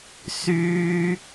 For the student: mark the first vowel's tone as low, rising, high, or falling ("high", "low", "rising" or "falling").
high